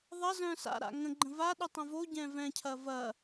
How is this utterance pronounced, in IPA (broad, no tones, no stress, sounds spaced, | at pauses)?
ðˤ ɐ z œ̃ s a̰ ɾ a̰ ŋ ə̃ ɡ͡ǃ ə̃ v a ɗ y tˤ õ v o ɟ ɛ̃ v ɛ̃ cʰ ɐ v ɐ